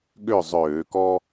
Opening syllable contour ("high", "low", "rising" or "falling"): falling